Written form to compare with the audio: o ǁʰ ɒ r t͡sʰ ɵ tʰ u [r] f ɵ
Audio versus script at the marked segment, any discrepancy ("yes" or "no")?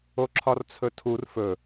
no